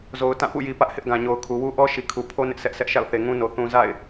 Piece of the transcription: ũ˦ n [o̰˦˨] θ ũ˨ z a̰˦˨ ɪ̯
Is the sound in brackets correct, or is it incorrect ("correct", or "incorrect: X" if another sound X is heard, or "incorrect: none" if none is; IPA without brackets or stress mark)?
incorrect: o˨